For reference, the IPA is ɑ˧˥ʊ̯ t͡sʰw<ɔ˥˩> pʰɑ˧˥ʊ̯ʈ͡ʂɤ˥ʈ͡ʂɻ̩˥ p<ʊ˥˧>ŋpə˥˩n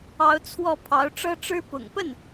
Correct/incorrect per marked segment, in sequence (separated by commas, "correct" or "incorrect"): correct, incorrect